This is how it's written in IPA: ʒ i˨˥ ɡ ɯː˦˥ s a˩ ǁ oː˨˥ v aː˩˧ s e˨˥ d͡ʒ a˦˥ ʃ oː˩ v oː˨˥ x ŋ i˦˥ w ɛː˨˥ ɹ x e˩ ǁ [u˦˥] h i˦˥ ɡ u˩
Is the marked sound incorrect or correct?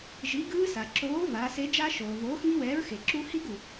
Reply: correct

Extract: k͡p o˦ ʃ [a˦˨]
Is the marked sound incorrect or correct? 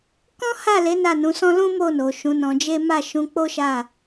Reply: correct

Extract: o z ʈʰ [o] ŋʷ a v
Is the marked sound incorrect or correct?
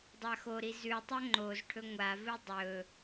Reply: incorrect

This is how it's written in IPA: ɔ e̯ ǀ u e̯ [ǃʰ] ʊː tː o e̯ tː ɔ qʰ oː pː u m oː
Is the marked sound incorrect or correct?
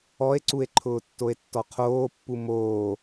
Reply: correct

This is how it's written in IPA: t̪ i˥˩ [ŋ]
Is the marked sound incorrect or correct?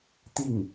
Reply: correct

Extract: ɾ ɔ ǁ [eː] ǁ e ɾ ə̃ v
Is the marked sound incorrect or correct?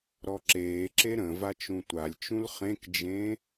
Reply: correct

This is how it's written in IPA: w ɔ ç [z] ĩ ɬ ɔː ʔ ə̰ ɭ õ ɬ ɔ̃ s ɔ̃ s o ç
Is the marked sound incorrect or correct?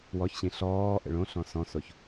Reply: incorrect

